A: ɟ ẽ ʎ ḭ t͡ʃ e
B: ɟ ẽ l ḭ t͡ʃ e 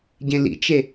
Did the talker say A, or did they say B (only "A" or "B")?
B